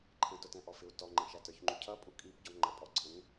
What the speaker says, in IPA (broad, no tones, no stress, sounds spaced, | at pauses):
ǃʰ ə̃ t ʊ t ɛ̃ ʔ ɔ f ɪ u̯ t ɔ ŋ͡ǃ ə̃ ʃ æ t ə˞ ç ŋ͡ǃ u cʰ ʌ pʼ u kʼ i p ɟ ɔ ŋ͡ǃ ə pʼ ɔ ǀʰ ə̃ ŋ